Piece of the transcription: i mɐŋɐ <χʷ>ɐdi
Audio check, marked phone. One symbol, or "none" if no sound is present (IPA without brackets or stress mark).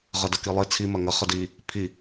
χ